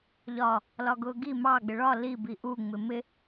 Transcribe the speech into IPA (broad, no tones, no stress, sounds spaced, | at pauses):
ʎ ɒ | l ɒ ɡ ʊ ɡ i m ɑ ɡ͡b ɪ ɭ ɒ l i b i ʔ u ŋ͡m ɪ m ɪ